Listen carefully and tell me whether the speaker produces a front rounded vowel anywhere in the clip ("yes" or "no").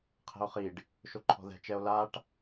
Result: no